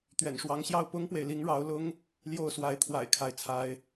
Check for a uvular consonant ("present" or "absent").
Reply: absent